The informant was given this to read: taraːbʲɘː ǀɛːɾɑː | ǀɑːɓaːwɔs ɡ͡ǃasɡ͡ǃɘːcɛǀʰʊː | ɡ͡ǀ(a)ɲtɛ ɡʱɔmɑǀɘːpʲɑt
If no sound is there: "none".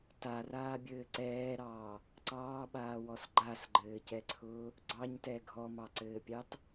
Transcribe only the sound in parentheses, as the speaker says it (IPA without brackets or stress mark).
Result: ɑ